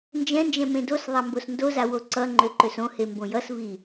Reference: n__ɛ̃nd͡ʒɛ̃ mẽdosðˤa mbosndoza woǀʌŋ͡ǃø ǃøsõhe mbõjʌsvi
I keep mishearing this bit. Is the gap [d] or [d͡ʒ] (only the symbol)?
d͡ʒ